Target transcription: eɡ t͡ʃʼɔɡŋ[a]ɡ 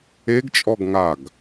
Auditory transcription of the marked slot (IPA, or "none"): a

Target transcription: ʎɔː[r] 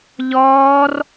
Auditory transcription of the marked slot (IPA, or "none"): r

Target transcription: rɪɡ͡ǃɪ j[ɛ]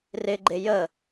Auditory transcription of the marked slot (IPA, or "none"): ə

